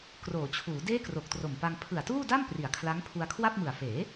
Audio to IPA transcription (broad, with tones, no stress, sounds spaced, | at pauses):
k r oː˩˦ t͡ɕʰ uː˩˦ d eː˥˩ k r o˨˩ k̚ t r o˨˩ m p a˧ ŋ pʰ ɯ˨˩ a̯ t uː˥˩ d a˥˩ m p r i˩˦ a̯ kʰ l a˦˥ ŋ pʰ u˧ a̯ kʰ w a˥˩ p̚ m ɯ˨˩ a̯ f eː˩˦